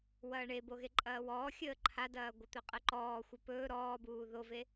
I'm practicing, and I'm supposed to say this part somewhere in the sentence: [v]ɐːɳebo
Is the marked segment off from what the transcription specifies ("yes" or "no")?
yes